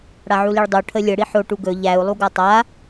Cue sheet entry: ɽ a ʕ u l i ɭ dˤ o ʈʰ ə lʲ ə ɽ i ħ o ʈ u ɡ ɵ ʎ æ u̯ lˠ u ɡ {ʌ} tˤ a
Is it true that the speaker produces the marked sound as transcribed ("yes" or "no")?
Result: no